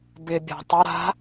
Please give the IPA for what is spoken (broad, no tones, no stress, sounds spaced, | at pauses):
b ɪ bʲ a̤ tˤ ə ɾ a̤